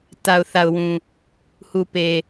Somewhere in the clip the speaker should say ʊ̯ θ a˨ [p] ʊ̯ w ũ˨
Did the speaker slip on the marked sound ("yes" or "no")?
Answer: yes